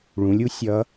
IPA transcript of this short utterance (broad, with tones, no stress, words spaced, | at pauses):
ɭũ˩˧lʲu˥ sʲʌ˧˥